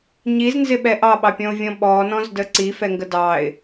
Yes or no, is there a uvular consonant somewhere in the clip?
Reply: no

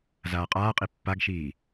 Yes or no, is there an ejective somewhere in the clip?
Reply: yes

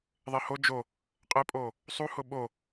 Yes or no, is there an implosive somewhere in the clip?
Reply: yes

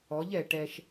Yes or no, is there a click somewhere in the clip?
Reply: no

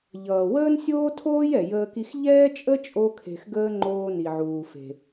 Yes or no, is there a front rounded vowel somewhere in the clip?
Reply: no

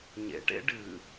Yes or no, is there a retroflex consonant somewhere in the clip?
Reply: yes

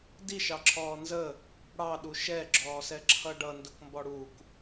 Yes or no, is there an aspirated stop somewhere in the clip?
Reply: yes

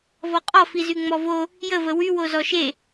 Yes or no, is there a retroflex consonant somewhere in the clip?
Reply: no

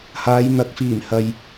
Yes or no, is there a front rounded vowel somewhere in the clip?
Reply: no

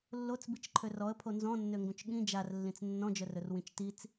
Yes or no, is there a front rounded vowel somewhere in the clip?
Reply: yes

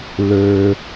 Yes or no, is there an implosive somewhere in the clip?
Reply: no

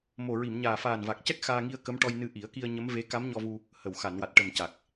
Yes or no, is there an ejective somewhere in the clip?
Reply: no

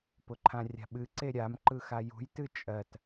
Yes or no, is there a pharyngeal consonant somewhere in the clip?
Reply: no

